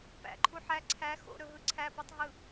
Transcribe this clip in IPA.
p æ̰ ǃʰ u ħ æ ǀʰ æ x o̰ ɾ ɵ ɦ ɯ ǀʰ æ p ɯ tˤ ɦ ɯ

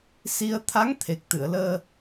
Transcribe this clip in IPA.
s i˧ ə̯ t̪ʰ a˧˥ ŋ t̪ʰ e˨˩ k̚ t̪ ɨ˨˩˨ ə̯ l əː˧

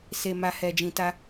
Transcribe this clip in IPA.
s e˨ m a˨ h ɛ˨ d͡ʒ ĩ˨ t a˧

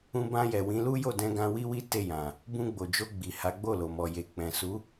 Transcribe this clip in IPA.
ũ˧ b ã˧ j ɛ˨ w ĩ˨˦ l u˦ j o˦˨ d ɛ̃˧ ɡ ã˧ w i˦ w i˦ t e˦˨ j ã˨ | b ũ˧ ɡ͡b o˨ d͡ʒ o˧ ɡ͡b i˨ h a˨˦ ɡ͡b o˦˨ l o˨ m ɔ˨ j e˨ k͡p ɛ̃˨ s u˨˦

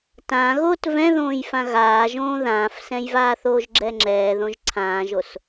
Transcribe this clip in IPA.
t ã ɣ oː t v ɛ̃ ð õː j f ã ɣ aː ʒ õː ð ãː f s ɛ̃ j v aː θ oː ʒ ɡ͡ǁ ɛ ŋ͡ǁ ɛː ð õ ʒ ǀʰ ãː ʒ o s

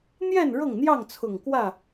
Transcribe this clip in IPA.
n̪ j ɛ˥˨ n ɻ ɤ˥˨ ŋ n̪ j ɑ˥˨ ŋ t͡sʰ ʊ˨˩ ŋ k w ä˥˨

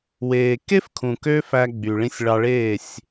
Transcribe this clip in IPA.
w eː˨ k e˦ f kʰ ũ˨ k ø˦ f æ˧ ɡ͡b y˨ ɭ ĩ˧ sʲ ɭ ɑ˧ ɭ eː˦˨ sʲ

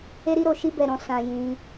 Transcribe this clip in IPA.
e˦ ɾ i˦ ɾ o˦˨ ʃ i˧ b ɛ˨ ɾ ɔ̃˨ s ã˨ j ĩ˧

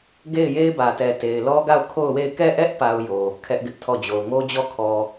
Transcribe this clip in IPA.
ɡ e˦˨ ɪ̯ j e˦ ɪ̯ b ä˨ t ɛ˨ t e˨ ɪ̯ l ɔ˦ ɡ a˦˨ ʊ̯ kʰ o˦˨ ʊ̯ w e˦˨ ɪ̯ k ɛ˦˨ ʔ ɛ˦ ʔ p a˦ ʊ̯ j o˨ | kʰ ɛ˦ ʔ ɡ ɪ˦ ʔ tʰ ɔ˦˨ d͡ʑ o˨ ʊ̯ ŋ o˦ d͡ʑ ɔ˦˨ kʰ ɔ˨

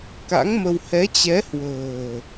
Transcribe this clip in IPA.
k a̰˧˥ ŋ m ə˧ w h ɛ˨˦ t͡ɕ ɛ˨˦ h w ə̤ː˨˩

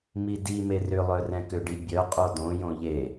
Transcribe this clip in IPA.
m i d i m e r ʏ lˠ œ r ɛ̃ k ʏ ɖ i bʲ œ qʼ o d õ j õ ʎ e

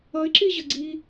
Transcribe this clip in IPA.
ʌ ɪ̯ ǁ i ʑ ə ɡ͡ǀ i

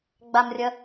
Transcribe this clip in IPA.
ɡ͡b a m rʲ ɐ

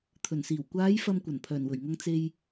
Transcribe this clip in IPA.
t̪ʰ ɵ˨˩ n s iː˨˩ w kʷ aː˨˧ j f ɐ˨ m kʷ ɐ˨˩ n pʰ œː˨˩ n w ɵ˨˩ ɥ ŋ ɐ˧ ŋ t͡s e˧ j

